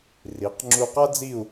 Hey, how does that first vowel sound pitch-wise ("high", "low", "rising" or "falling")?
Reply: rising